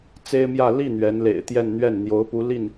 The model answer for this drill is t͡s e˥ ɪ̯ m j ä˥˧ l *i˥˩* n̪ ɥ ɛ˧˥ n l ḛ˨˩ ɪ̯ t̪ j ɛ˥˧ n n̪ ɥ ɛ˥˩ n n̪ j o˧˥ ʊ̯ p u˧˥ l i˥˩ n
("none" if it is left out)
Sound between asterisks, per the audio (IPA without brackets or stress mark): i˥˩